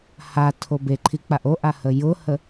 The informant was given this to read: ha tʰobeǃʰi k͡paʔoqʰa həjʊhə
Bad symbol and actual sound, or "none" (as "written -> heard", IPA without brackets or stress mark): qʰ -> ʔ